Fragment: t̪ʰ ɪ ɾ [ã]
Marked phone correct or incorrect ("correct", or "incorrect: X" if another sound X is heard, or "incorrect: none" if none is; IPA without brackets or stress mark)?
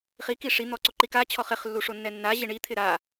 incorrect: a